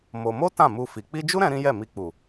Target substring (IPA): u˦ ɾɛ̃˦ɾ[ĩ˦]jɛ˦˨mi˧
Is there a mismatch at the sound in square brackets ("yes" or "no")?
no